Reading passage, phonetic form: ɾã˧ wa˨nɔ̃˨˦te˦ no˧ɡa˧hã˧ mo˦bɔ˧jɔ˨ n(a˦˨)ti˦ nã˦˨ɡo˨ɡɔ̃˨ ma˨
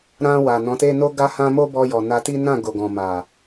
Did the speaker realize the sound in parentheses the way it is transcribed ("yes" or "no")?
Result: no